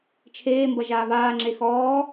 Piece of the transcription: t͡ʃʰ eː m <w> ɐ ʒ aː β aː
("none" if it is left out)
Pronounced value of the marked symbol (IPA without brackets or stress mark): b